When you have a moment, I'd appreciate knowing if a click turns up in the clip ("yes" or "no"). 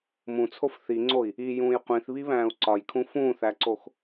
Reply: yes